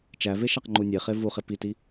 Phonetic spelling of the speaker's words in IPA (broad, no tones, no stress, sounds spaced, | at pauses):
t͡ʃ æ v e ʃ æ q ŋ͡ǃ u nʲ e χ e v u χ e p i t i